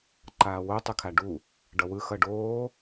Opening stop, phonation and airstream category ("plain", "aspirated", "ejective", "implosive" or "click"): click